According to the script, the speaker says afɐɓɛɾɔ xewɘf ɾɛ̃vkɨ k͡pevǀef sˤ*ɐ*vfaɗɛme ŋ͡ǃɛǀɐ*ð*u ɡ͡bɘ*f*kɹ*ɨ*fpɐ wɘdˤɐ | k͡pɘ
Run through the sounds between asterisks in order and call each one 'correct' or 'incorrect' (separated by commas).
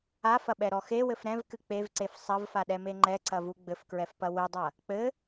correct, incorrect, correct, incorrect